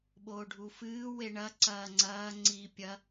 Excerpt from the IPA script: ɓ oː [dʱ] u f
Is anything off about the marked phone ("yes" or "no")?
yes